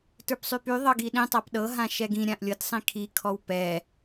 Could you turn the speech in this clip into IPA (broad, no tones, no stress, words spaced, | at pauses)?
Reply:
tə˞psˤypy ðˤɤɡiɗĩ tˤapɗɤ ɦãʃɛɡĩ ɾʲãʔlʲɤt sˤĩkʰi kʰɔwpɛ